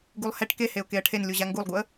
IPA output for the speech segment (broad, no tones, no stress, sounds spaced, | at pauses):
ɡ u lˠ h ɛ ʈ k e h e ʊ̯ k e ə̯ ʈʰ e n lʲ u ʑ a ŋ ɡ u lˠ ɡ u ə̯